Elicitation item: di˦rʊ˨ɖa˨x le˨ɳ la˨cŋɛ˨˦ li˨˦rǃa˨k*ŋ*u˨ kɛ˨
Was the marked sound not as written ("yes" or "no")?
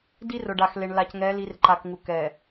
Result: no